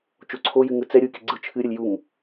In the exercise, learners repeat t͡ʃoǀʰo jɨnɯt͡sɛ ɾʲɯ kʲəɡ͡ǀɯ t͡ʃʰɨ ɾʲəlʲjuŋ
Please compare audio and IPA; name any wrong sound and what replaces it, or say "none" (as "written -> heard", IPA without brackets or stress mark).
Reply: n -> ŋ